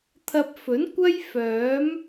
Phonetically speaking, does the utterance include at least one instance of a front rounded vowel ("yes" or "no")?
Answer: yes